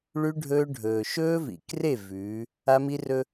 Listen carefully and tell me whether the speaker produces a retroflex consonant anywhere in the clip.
yes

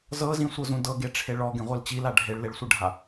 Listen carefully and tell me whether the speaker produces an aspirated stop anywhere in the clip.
yes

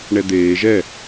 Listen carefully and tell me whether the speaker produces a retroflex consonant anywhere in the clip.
yes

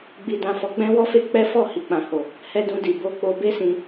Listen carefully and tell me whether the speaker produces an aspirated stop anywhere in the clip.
no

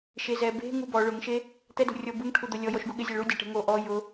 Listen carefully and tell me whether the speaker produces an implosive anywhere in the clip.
yes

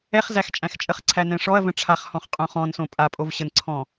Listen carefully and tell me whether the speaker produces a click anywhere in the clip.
yes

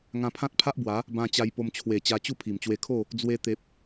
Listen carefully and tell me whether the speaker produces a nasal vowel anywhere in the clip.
yes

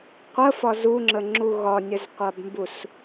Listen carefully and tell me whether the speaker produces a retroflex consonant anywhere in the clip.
no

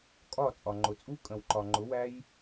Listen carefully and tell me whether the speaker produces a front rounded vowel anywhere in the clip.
no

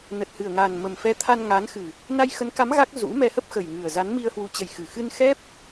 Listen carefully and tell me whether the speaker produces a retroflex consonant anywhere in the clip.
no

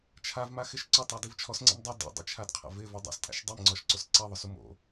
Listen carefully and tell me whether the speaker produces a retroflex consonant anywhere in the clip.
no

